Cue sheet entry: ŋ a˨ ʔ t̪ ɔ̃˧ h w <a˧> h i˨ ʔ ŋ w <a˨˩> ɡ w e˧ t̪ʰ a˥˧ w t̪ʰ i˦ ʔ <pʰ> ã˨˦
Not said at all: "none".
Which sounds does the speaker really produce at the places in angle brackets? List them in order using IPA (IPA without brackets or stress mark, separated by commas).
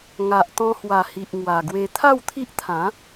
a˨˩, a˨˩, t̪ʰ